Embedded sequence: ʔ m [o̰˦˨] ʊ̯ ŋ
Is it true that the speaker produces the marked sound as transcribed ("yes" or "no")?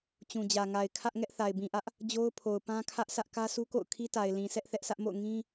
yes